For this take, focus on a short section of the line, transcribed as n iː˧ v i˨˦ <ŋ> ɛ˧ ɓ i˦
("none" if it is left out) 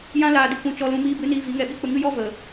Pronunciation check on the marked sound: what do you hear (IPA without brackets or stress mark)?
ŋ